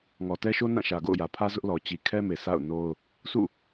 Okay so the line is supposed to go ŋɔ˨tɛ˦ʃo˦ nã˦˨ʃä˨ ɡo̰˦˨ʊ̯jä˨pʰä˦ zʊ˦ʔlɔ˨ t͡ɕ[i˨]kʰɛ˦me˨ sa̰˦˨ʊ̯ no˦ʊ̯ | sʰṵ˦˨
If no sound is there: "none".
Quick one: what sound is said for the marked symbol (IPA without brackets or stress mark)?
i˨